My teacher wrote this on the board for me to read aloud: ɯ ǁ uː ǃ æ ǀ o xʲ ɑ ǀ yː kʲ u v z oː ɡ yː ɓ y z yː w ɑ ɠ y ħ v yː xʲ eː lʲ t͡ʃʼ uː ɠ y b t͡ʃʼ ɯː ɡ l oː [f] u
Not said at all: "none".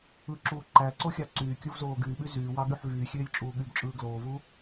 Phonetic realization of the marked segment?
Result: v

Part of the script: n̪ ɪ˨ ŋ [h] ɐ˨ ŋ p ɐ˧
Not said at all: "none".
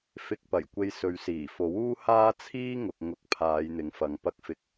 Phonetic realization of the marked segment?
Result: f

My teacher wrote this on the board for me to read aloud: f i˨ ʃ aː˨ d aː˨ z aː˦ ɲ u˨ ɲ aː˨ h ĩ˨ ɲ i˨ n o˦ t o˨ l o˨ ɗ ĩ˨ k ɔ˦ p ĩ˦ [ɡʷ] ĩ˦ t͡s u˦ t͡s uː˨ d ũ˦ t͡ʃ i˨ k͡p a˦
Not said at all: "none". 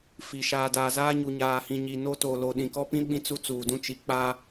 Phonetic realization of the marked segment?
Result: ɓ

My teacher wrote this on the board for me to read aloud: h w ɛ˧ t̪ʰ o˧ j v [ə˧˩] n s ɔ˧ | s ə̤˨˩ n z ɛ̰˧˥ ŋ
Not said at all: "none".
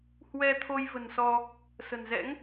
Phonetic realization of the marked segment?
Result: ə̤˨˩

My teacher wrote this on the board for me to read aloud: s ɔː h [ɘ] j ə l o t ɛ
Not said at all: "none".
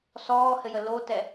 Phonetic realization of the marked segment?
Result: ɘ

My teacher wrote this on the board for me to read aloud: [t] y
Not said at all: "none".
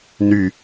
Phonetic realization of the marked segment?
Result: n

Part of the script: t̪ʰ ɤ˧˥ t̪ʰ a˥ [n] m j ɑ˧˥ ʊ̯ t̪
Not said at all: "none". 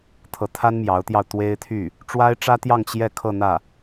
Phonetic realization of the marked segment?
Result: n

